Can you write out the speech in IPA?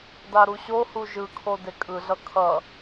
d a ɾ u ɕ o h u ʒ ɯ kʰ o d e kʼ ɯ ɮ ʌ kʰ ʌ

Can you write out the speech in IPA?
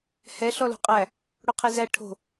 h ɛ ɬ ɔ l o̤ qʼ æ | ɽ o qʰ e z æ ʈʰ o̤

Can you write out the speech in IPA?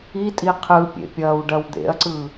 i tʼ i qʰ ɯ pʲ ḛ pʲ ɐː w ɖ ɐ w d̪ ḛ ɐ̯ ǀ ɯ

